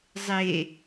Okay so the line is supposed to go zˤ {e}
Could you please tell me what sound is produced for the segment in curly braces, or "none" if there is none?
e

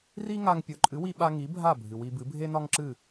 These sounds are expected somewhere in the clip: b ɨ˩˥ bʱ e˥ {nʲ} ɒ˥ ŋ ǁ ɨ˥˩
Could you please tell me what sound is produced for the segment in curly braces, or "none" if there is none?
n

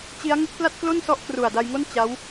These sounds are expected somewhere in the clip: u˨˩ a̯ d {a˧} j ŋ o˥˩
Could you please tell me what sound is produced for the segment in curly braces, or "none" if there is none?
a˧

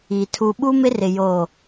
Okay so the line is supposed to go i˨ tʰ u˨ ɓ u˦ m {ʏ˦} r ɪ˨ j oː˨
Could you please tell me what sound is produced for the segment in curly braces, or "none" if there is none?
ɪ˦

